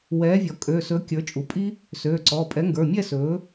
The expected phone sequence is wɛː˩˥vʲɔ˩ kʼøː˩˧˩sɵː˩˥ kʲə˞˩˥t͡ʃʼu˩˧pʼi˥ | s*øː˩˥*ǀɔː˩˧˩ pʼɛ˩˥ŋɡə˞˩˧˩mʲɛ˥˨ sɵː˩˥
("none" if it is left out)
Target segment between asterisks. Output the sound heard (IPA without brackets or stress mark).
øː˩˧˩